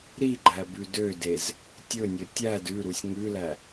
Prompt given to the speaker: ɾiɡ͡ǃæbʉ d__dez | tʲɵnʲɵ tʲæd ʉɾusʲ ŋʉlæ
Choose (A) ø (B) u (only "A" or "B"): A